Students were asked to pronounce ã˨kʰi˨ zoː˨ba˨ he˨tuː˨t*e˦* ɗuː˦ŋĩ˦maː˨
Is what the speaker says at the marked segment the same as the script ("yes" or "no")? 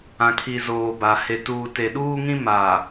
no